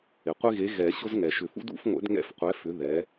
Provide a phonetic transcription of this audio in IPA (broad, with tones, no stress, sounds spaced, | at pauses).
ɪ˩ qʷ ɪ˦ ɣ e˨˥ ɣ ɛ˨˩˦ ɕ ʊ˦ z ŋ ɛ˩ ʃ ʏ˨˩˦ f ṵ˦ d ṵ˨˩˦ f ŋʷ ɛ̰˨˩˦ d ŋ ɛ̰˦ f qʷ ɛ˨˥ f ʏ˨˥ ð ɛ˨˥